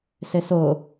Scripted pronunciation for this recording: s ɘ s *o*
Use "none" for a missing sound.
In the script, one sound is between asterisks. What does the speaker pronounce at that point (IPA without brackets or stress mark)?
o